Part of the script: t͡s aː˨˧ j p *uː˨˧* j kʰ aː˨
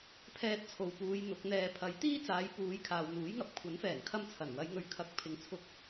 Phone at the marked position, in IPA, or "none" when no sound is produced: uː˨˧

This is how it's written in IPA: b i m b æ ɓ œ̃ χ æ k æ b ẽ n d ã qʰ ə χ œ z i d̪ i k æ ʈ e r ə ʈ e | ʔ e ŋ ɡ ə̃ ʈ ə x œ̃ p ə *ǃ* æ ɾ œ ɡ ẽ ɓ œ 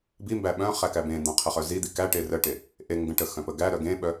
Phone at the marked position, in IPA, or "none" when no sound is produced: ɡ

